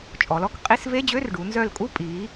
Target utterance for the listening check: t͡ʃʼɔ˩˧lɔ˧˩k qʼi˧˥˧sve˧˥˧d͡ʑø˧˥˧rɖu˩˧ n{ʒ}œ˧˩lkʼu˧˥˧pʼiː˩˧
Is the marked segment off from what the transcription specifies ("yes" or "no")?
yes